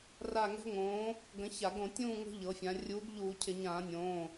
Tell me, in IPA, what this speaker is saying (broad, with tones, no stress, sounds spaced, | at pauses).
r a˦˨ ŋ ɛ̤˦˥ ŋ õː˨˥ | ɡ ə̃˨˥ ç a˧˩˧ ɡ õ˧˩˧ tʲ ũː˦˨ ŋ o̤˦˥ ʎ ɤ˩˧ fʲ ã˩˧ rʲ uː˨˥ ɡ ʎ uː˧˩˧ cʰ ɪ˧˩˧ ɲ ãː˧˩˧ nʲ õː˩˧˩